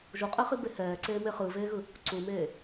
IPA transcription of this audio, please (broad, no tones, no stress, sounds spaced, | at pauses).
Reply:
ʒ u qʼ e χ i b e h ɛː ǀ eː m e χ ɯ v eː ɣ ɯ | ǀ u m eː